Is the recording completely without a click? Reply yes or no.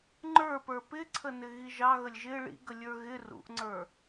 no